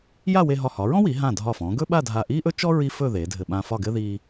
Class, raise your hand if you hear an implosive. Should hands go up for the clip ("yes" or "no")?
yes